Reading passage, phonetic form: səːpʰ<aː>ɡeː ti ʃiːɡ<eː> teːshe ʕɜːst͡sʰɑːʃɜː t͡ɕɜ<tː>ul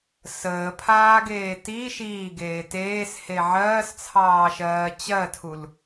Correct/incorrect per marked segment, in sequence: correct, correct, incorrect: tʰ

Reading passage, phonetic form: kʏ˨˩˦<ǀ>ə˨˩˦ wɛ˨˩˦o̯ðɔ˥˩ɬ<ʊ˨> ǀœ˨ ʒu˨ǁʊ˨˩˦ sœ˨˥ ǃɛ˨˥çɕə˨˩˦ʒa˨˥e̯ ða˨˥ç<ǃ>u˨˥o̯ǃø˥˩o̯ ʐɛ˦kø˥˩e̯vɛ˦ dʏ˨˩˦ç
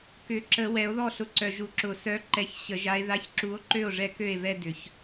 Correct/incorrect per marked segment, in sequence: incorrect: ǁ, correct, incorrect: ǁ

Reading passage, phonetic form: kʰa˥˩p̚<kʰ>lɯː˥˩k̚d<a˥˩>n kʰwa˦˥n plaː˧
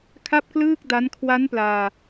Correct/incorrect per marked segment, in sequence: incorrect: k, incorrect: a˦˥

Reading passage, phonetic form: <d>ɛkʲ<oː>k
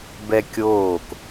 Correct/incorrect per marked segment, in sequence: incorrect: b, correct

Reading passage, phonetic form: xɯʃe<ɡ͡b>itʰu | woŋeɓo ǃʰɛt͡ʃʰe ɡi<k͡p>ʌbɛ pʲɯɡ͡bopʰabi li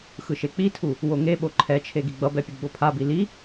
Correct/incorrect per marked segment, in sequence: incorrect: k͡p, incorrect: ɡ͡b

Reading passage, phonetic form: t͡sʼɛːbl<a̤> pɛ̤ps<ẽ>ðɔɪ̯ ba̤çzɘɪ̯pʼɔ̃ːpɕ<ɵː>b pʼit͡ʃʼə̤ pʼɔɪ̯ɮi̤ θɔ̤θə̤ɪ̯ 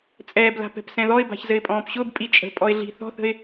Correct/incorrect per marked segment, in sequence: correct, incorrect: ɛ̃, incorrect: ʊː

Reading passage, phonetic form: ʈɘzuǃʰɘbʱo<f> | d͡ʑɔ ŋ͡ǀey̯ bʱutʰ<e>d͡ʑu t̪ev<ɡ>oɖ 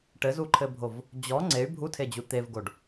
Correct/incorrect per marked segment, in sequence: incorrect: v, correct, correct

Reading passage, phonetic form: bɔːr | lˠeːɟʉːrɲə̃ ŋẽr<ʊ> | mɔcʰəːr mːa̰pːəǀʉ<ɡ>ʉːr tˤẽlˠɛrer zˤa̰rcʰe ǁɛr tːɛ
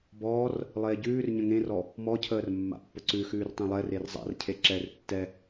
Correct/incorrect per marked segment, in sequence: incorrect: ɔ, incorrect: x

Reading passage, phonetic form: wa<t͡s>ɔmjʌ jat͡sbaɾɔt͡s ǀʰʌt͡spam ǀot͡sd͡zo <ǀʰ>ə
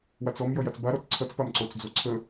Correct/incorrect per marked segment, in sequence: correct, correct

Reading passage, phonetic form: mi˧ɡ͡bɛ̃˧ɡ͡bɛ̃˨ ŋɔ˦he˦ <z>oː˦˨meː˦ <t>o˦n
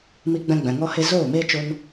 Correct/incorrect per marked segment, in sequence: correct, incorrect: t͡ʃ

